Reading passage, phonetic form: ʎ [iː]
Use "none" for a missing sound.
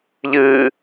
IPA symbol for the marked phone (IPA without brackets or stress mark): ɨː